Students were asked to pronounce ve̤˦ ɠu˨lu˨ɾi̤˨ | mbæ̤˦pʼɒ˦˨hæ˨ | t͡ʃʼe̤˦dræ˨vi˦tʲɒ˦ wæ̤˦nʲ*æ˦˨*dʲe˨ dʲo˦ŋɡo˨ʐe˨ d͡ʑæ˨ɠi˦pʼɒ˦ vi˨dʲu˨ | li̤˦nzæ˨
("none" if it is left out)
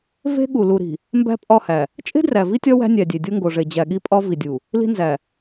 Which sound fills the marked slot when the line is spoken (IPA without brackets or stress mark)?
æ˨